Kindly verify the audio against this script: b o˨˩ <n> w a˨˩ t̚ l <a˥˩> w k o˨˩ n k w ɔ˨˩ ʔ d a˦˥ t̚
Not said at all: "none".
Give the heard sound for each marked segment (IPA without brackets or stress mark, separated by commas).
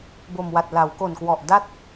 m, a˩˦